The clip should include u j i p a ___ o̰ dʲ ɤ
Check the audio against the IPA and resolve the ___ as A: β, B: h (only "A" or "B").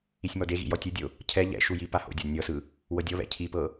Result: B